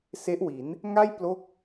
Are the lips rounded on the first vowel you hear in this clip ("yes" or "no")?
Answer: no